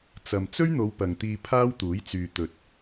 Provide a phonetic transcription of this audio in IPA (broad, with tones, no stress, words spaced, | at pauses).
t͡sɐ˨m t͡sɵ˥ɥn̪o˨˧w pɐ˨ŋt̪iː˧ pʰaː˥wt̪uː˨˥jt͡syː˨ t̪ɵ˨t̚